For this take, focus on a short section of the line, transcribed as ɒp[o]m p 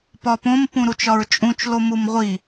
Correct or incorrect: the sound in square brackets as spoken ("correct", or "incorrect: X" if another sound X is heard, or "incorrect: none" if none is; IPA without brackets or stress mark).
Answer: incorrect: õ